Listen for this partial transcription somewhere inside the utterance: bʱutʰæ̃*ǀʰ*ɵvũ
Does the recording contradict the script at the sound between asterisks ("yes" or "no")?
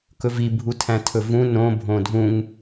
yes